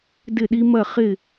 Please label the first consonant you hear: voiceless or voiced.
voiced